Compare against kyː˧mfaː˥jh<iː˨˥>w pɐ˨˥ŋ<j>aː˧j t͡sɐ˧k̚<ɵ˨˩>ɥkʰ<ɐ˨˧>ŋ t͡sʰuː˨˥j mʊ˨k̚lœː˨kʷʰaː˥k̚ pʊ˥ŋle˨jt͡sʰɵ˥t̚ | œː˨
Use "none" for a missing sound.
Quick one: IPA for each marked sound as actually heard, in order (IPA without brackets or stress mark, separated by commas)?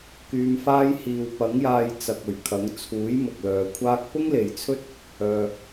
iː˧, j, ɵ˨˩, ɐ˨˥